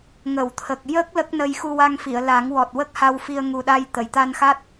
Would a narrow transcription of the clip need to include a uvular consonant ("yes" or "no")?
no